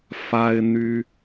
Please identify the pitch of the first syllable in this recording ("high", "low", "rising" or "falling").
high